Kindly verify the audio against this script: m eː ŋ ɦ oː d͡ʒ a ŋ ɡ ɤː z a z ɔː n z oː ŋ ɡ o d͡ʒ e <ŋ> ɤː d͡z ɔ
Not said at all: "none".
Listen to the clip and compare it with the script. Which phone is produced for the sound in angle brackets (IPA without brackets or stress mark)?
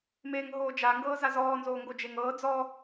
ŋ